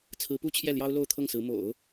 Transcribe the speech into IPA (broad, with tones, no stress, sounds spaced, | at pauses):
t͡sʰ ɹ̩˧˥ p u˥ t͡ɕʰ j ɛ˥˩ l j ɑ˥ ʊ̯ l o˥˧ ʊ̯ t̪ʰ ɤ˥˩ ŋ s ɹ̩˧˥ m o̰˨˩˦ ʊ̯